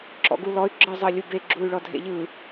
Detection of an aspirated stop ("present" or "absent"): absent